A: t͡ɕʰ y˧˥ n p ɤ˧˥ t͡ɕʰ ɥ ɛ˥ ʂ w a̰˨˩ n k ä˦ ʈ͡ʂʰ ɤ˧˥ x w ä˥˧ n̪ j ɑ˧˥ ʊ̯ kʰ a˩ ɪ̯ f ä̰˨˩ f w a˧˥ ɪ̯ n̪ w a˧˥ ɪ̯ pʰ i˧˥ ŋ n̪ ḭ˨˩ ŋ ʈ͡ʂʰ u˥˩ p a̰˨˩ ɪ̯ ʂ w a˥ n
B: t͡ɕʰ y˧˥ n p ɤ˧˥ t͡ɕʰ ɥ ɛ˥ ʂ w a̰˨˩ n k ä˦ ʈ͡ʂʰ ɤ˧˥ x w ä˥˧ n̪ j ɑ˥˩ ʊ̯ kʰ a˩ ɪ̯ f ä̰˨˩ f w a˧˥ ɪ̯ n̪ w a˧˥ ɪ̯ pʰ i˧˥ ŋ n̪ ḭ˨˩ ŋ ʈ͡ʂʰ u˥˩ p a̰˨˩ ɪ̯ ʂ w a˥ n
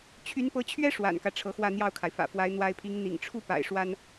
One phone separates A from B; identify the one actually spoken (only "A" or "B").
B